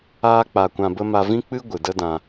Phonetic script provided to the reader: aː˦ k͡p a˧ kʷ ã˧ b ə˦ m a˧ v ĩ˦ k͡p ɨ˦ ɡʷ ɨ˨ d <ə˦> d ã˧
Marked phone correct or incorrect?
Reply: correct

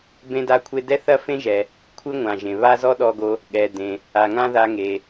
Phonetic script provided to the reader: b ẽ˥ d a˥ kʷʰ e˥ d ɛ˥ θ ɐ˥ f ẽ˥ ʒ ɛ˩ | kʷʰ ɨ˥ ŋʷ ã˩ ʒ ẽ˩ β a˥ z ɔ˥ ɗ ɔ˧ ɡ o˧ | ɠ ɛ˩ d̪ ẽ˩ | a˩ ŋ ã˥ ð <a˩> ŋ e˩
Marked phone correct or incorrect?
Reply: incorrect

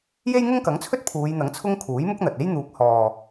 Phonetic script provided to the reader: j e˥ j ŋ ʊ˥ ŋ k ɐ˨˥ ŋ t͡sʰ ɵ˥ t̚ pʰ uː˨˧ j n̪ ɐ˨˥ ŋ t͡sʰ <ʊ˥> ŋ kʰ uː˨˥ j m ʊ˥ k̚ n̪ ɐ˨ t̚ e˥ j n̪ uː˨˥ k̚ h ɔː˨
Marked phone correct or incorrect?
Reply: correct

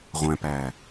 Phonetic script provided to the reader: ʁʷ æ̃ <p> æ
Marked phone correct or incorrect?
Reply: correct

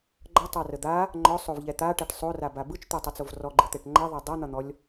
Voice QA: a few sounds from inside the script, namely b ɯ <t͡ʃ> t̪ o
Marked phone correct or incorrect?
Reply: correct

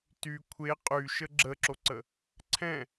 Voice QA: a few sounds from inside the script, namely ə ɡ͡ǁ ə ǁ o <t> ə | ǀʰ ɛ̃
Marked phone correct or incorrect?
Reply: incorrect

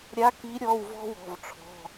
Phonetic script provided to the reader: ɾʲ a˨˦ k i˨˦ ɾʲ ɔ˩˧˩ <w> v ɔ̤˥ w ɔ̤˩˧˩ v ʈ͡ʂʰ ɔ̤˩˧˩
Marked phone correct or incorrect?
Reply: correct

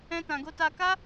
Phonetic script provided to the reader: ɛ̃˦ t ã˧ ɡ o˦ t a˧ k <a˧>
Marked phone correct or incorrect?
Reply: incorrect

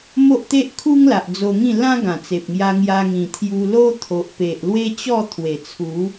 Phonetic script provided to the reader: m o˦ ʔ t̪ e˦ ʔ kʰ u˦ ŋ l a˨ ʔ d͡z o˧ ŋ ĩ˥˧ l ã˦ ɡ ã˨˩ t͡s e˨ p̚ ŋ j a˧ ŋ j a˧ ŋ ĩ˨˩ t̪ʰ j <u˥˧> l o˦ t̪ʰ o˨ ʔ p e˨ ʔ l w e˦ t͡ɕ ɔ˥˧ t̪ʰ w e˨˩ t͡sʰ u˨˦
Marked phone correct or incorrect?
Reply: incorrect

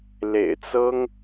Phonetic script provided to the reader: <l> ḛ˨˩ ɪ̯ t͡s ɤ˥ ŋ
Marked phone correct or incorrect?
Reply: correct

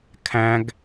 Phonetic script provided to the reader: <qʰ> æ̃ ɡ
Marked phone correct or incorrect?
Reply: incorrect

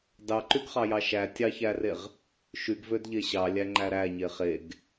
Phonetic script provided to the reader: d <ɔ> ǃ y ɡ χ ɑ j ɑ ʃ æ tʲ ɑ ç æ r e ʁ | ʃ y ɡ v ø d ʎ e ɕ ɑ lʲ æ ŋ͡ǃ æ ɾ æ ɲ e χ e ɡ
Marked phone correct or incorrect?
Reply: incorrect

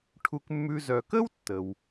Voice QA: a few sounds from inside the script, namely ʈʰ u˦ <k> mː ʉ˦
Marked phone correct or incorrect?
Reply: correct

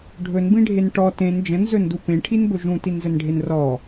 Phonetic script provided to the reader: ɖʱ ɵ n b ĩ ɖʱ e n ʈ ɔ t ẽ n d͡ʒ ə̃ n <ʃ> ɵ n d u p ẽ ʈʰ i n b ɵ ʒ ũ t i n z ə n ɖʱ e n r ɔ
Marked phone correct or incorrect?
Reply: incorrect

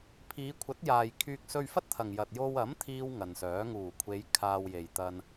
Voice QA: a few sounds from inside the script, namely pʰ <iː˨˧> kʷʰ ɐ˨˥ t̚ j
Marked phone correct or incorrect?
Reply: correct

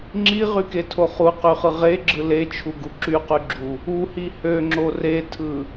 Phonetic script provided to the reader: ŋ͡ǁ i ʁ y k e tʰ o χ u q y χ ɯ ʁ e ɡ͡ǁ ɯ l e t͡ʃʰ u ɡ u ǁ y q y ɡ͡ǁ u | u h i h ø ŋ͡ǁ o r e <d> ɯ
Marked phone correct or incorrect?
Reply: incorrect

